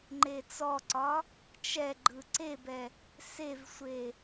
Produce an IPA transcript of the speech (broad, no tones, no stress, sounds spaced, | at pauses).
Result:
ŋ͡ǃ e t͡s ɔ ǀ ɒ | t͡ʃ ɛ ɡ͡ǃ ɯ ǀ e b ɛ | s e v sʷ e